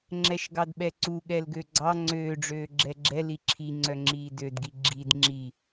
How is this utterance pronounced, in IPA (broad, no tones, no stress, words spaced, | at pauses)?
ŋ͡ǁɛʃɡɑdɓɛǀu ɠɛlɡøɡ͡ǀɑ ŋ͡ǀøːɖ͡ʐøː ɡ͡ǁɛɡ͡ǁɛli ǁʰiŋ͡ǀœŋ͡ǁiː dødɡi ɡ͡ǁid ŋ͡ǁi